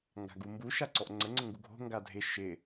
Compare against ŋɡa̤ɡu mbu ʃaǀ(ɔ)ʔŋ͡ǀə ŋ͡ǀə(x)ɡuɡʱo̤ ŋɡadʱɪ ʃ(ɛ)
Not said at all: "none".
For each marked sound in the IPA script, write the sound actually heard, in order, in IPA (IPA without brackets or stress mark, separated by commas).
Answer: ɔ, ŋ, ɪ